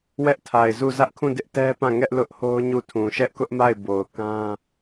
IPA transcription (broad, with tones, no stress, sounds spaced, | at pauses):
w ɛ˦ ʔ tʰ a˨ ɪ̯ z u˦˨ z ä˦ ʔ kʰ ũ˦˨ d ɪ˦ ʔ t ɛ˦ p ã˦˨ ŋ ɛ˦ ʔ l ʊ˦ ʔ h o˦ ʊ̯ ɲ u˦˨ tʰ ũ˨ ʃ ɛ˦ ʔ k ʊ˦ ʔ m a˦˨ ɪ̯ b o˨ ʊ̯ k ã˦